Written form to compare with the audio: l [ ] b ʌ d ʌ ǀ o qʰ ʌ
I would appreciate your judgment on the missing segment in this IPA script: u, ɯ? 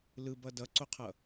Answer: ɯ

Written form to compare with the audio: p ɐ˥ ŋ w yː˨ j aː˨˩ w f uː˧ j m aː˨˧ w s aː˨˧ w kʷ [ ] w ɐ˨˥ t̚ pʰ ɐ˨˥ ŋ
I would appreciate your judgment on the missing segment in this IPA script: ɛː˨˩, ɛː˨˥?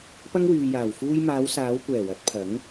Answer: ɛː˨˩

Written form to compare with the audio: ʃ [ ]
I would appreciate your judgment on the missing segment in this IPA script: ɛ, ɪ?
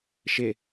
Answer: ɪ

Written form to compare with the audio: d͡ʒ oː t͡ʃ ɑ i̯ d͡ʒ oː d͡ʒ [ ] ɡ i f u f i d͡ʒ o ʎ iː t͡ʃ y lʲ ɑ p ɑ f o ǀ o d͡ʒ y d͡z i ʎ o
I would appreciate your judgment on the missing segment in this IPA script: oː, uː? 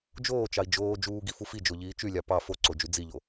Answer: uː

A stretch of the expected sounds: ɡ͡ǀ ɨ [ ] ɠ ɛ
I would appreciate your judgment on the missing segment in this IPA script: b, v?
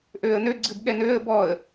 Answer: b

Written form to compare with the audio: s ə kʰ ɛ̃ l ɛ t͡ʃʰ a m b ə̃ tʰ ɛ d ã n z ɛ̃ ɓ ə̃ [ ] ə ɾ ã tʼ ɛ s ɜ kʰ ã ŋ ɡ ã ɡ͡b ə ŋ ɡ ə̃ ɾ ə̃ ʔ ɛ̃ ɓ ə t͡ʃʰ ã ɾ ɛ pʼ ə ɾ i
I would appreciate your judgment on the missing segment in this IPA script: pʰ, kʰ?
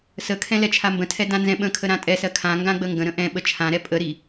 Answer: kʰ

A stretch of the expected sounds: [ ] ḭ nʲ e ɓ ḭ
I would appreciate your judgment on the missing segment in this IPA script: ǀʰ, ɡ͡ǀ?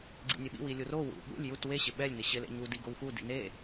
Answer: ɡ͡ǀ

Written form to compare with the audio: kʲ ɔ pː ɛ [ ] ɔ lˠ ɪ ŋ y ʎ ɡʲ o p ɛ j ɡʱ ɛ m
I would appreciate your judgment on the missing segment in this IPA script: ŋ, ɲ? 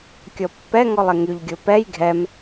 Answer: ŋ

